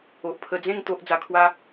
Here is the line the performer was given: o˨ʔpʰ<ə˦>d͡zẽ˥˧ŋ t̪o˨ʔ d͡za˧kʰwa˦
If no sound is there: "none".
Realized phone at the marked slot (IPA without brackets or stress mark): ə˧